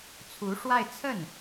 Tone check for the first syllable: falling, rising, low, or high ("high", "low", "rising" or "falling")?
rising